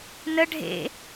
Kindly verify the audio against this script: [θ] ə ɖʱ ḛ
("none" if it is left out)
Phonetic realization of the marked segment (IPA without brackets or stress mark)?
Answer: n